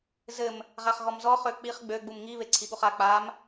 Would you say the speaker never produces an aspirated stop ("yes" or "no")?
no